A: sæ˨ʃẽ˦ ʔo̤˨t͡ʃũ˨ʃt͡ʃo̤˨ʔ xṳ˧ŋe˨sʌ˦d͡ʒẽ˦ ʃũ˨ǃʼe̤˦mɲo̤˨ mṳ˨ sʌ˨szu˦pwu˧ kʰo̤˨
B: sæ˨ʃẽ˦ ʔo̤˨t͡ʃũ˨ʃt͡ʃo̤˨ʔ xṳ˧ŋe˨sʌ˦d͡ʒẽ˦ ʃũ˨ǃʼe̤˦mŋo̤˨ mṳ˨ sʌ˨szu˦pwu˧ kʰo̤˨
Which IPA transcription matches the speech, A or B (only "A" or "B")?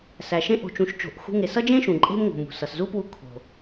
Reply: B